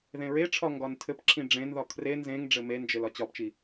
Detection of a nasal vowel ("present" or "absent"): present